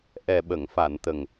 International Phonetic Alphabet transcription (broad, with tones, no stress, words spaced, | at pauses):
ʔɛ˨˩ɓə˨˩˨ŋ fa˨˩˨nt̪ə˨˩ŋ